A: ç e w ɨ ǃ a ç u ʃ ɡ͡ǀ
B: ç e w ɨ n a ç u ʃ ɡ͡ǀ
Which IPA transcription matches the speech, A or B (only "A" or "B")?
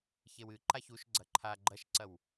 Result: A